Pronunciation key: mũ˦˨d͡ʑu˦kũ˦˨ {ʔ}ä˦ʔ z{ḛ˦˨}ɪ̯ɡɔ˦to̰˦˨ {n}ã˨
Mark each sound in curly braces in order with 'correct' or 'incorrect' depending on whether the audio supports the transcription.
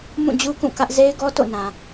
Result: incorrect: k, incorrect: e˦, correct

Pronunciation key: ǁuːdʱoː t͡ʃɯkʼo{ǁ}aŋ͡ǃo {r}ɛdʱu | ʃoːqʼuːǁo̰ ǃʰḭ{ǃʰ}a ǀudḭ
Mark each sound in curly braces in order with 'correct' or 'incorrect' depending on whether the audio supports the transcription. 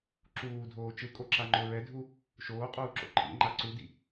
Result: correct, incorrect: ɹ, incorrect: ŋ͡ǃ

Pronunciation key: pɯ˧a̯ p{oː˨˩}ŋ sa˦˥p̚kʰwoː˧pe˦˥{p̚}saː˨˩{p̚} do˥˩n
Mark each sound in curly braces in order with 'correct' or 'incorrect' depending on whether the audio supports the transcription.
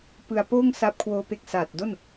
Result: incorrect: oː˥˩, incorrect: k̚, incorrect: t̚

